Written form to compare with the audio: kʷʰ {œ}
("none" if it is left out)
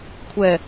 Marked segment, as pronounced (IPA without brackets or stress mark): ɛ